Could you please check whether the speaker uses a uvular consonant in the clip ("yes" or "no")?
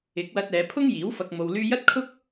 no